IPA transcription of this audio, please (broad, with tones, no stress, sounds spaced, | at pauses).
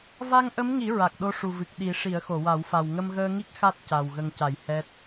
v a˧ ŋ ʔ ə˧˥ m ŋ i˨˩˦ ɹ a˨˩ k̚ ɗ o˧ ʂ u˨˩ v ɨ˨˩ k̚ ɗ i˨˩˦ ʂ i˨˩˦ ə̯ x o˨˩˨ w a˨˩˦ w f a˨˩ w ŋ ə˧ m ɣ əː˧ ŋ i˦˥ k̚ x a˦˥ t̚ c a˨˩ w ɣ ə˨˩ ŋ c a˨˩˨ j h ɛ˦˥ t̚